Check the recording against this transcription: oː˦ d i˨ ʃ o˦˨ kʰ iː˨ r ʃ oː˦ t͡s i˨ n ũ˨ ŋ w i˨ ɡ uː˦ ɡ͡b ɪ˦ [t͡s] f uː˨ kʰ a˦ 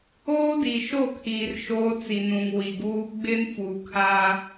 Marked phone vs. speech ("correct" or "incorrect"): incorrect